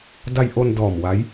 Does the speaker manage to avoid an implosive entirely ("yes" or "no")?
yes